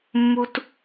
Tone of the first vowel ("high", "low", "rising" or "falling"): high